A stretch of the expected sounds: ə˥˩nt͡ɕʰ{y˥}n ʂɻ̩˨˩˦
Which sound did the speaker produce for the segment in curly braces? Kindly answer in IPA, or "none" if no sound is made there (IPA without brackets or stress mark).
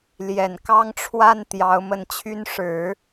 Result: y˥